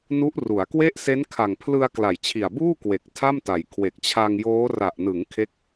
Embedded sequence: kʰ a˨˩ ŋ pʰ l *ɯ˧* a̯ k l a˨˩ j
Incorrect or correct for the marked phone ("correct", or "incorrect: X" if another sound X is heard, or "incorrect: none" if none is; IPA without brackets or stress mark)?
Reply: correct